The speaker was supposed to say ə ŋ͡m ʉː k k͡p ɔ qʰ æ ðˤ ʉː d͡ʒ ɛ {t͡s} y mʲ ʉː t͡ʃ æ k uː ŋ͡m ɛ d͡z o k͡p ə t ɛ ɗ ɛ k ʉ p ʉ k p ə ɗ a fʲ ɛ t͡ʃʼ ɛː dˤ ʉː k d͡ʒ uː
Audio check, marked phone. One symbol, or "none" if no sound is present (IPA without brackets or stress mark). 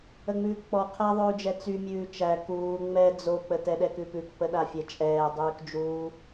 t͡s